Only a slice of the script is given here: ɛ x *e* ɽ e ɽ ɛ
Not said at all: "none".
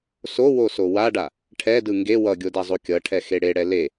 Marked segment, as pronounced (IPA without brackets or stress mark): e